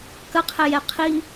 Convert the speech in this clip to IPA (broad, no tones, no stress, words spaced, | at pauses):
kɐqʰɛjɛ qʰi